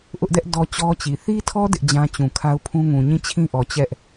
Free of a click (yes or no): yes